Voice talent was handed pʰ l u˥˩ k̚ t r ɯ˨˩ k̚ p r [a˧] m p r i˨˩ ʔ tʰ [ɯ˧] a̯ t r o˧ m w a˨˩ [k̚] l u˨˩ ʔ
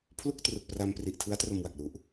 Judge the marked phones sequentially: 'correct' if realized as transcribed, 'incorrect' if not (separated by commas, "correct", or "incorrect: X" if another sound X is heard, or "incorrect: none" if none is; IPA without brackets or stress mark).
correct, incorrect: ɯ˦˥, correct